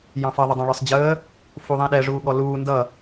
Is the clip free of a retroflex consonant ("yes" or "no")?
no